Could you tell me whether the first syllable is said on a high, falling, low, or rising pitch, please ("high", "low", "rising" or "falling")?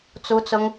high